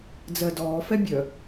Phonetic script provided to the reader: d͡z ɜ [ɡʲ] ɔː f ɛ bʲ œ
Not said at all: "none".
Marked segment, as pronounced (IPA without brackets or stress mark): d